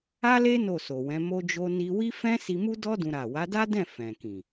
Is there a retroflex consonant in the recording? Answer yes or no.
no